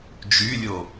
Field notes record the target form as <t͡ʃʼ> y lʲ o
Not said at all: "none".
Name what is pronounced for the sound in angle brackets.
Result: d͡ʒ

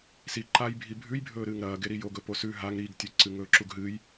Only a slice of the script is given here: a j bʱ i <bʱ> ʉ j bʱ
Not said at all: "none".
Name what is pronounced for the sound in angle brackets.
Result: bʱ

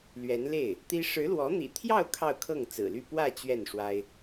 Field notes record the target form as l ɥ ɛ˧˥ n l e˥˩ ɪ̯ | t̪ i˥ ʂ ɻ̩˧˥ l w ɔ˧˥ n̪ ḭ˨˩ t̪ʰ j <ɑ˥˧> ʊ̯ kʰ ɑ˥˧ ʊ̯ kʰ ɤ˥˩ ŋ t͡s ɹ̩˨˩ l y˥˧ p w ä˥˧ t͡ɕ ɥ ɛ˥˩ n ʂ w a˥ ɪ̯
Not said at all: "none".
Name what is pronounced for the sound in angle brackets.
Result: ɑ˥˧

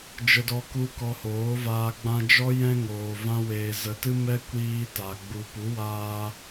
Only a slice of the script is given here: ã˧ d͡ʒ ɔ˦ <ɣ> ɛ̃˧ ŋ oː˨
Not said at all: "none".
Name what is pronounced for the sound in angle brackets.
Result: j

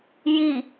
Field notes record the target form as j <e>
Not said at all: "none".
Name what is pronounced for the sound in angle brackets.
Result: i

